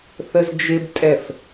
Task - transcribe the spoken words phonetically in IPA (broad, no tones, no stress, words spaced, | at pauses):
θəzd͡ʒɪbtʼɛf